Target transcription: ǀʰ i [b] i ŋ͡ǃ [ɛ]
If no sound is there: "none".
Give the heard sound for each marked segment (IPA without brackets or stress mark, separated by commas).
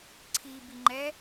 b, ɛ